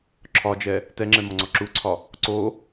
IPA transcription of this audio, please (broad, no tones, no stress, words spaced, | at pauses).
ǁʰɒd͡ʒɛ | tɛŋ͡ǁɛmɒŋ͡ǀɒ ǁuǀʰɒ | ǀo